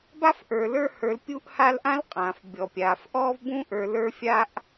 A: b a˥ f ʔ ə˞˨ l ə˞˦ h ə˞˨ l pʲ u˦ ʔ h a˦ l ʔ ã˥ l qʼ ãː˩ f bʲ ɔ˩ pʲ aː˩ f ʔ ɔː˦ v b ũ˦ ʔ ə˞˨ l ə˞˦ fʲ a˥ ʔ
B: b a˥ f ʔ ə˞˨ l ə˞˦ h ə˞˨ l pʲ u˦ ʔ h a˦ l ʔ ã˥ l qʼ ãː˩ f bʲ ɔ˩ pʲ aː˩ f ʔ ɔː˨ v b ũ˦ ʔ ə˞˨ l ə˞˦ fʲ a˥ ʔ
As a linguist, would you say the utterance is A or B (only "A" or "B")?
A